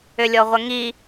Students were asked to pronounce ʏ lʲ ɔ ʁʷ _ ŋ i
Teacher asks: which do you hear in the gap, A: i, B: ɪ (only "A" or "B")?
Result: B